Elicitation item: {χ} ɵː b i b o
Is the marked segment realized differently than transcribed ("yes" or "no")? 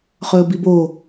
no